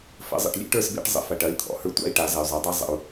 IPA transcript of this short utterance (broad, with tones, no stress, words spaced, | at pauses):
fə̰˩˥zˤə̰˨ʈ lʲḛ˦˥ʈə˞˥˨sbḛ˦˥ʈ zˤə̰˨ fɐ˨ʈɐ˩˥i̯ t̪ʰɔ̰˨hə˞˦˥ tʷɑ̰˥˨i̯ʈa˨˩˦ zɐ˨y̯zˤe˩˥dˤa˦˥ zˤə̰˨u̯